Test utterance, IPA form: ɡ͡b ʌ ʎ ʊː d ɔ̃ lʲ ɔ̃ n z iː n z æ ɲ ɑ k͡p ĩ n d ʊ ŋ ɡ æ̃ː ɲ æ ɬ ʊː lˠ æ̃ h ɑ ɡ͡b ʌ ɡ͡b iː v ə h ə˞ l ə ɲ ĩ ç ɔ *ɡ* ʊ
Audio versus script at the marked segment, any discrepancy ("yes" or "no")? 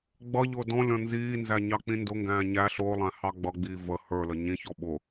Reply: yes